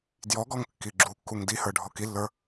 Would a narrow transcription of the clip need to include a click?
yes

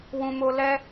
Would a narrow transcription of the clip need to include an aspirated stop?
no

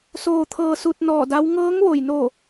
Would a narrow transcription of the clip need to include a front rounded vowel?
no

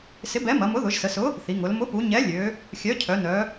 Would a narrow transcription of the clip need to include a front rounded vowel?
yes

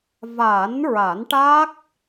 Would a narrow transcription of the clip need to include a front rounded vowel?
no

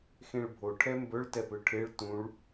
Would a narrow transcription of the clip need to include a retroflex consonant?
yes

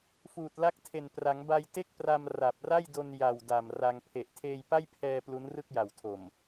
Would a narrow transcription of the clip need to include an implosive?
no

